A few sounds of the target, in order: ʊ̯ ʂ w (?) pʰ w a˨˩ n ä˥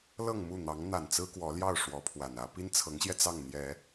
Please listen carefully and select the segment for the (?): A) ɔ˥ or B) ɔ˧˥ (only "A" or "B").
B